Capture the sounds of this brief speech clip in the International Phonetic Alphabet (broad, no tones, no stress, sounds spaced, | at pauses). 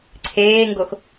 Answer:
ǀʰ eː ŋ ɡ o x